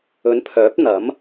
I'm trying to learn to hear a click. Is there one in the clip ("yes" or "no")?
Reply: no